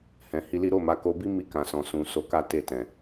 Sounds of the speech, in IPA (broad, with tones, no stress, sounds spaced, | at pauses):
h ɛ̃˨ h i˧ l i˦ ɾ o˦˨ m a˨˦ k o˧ b i˦ m i˧ k ã˨ s ɔ̃˨ s ũ˨ s o˧ k a˦ t e˦˨ t ɛ̃˨